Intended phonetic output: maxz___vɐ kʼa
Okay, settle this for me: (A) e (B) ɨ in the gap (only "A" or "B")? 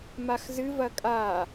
B